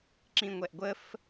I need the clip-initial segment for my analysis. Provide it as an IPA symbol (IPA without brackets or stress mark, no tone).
ǁ